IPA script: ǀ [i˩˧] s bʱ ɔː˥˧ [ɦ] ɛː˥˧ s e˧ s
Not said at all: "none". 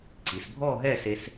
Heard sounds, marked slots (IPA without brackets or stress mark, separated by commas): i˩˧, ɦ